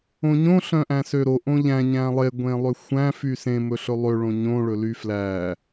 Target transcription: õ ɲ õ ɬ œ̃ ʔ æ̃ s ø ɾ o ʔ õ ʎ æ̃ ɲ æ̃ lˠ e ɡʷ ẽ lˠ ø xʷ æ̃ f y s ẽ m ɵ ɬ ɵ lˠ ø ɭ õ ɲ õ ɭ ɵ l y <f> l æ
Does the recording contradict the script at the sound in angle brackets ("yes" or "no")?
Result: no